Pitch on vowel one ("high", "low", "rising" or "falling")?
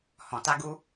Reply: low